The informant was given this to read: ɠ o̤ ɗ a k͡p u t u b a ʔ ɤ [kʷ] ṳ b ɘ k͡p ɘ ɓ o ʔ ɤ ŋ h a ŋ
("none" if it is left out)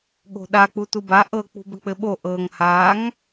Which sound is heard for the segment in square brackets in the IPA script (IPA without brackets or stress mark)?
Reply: k͡p